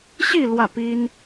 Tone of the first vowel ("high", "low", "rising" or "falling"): falling